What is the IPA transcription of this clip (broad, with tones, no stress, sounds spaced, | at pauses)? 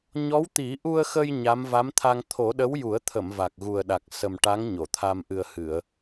ɲ ɔ˧˥ w t̪ i˨˩˦ ʔ u˧ ə̯ x ə˧ j ɲ a˧˥ m v a˧˥ m t̪ʰ a˧ ŋ t̪ʰ o˨˩˦ ɗ ə˧˥ w j u˨˩˦ ə̯ t̪ʰ ə˨˩˨ m v a˨˩ k̚ ɣ u˨˩ ə̯ ɗ a˨˩ k̚ s ə˨˩ m ʈ a˧˥ ŋ ɲ o˨˩˨ t̪ʰ a˧ m ʔ ɨ˨˩ ə̯ h ɨ˨˩˨ ə̯